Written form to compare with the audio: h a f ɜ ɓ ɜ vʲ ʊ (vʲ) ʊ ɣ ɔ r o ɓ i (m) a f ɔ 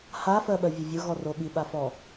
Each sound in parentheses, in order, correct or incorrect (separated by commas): correct, incorrect